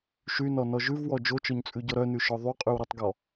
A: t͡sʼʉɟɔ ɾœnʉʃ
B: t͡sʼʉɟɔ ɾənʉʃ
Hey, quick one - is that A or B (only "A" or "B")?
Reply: A